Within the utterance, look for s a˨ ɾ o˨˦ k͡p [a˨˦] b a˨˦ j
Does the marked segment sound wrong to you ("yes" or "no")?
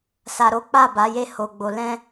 yes